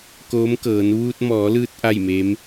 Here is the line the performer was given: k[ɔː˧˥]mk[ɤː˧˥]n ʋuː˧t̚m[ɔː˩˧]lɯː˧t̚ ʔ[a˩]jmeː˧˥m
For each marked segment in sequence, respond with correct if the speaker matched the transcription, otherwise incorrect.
incorrect, incorrect, correct, incorrect

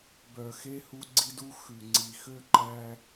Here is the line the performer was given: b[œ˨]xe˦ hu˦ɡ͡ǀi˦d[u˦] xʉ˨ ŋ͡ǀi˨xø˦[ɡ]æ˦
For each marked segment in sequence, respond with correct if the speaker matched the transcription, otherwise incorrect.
correct, correct, incorrect

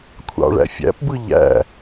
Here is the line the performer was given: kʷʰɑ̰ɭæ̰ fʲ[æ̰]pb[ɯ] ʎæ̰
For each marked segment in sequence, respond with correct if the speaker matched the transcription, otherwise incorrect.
correct, correct

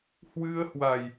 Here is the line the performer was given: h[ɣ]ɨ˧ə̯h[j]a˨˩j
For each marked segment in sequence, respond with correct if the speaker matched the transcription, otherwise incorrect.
incorrect, incorrect

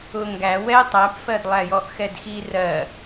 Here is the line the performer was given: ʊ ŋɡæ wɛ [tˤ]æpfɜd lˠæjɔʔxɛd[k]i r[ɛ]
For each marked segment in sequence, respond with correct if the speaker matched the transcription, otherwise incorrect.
correct, incorrect, incorrect

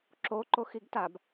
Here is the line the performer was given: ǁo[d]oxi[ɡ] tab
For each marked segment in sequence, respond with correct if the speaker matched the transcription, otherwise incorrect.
incorrect, correct

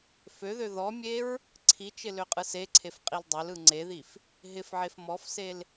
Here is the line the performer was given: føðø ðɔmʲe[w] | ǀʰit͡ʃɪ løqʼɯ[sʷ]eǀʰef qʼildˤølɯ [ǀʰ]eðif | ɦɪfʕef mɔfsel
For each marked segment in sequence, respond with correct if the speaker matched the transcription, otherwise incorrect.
incorrect, incorrect, incorrect

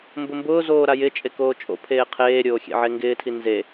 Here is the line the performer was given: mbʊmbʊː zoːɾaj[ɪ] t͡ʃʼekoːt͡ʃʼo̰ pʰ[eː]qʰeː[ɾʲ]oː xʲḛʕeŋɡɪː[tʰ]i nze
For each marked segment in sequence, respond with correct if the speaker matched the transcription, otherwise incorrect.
correct, correct, correct, correct

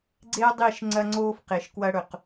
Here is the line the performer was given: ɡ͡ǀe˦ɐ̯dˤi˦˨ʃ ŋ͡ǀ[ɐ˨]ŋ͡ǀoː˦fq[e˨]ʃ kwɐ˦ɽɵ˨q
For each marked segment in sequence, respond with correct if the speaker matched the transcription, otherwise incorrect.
incorrect, correct

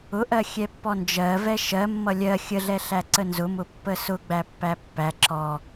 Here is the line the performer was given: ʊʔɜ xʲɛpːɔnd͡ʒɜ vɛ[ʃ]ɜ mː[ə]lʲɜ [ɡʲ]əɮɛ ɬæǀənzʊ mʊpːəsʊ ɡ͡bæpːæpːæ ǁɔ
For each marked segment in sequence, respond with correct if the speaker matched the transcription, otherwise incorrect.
correct, incorrect, incorrect

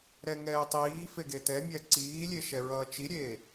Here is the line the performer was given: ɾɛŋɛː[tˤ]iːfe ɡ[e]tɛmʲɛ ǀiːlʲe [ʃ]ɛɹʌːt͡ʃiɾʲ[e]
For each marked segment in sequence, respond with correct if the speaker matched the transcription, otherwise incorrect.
correct, correct, correct, incorrect

